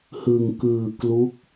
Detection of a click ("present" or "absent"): absent